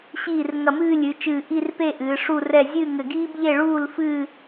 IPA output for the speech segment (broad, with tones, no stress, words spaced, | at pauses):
ɕiː˧˩r ŋɐ˧˩mɨː˥˧lʲɨ˩˧t͡ʃɨː˧˩ ʔi˥˧rpe˥˧ ʔɨː˩˧ʂu˥˧rɛ˥˧ zʲɨː˥˧ŋɘ˧˩ɡiː˥bʎe˥˧ ɭuː˥˧lfɨː˥˧